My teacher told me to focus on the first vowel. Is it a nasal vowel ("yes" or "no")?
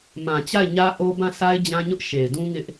yes